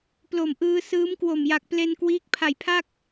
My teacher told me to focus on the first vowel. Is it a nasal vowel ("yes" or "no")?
no